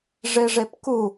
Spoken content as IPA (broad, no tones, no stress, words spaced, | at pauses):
ʐeʐepku